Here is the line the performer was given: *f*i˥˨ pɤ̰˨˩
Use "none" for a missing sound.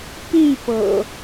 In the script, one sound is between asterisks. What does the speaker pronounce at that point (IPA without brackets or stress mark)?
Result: p